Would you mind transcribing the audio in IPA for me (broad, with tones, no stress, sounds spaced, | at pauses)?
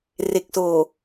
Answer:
r e˨˩ k̚ s oː˨˩